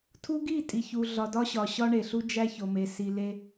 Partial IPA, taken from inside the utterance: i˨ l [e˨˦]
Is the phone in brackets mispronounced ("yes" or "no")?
yes